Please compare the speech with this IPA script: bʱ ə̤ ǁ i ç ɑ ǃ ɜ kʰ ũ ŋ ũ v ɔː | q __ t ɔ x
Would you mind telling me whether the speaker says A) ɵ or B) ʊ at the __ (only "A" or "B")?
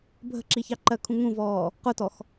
B